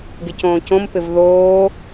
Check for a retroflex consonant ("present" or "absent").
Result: absent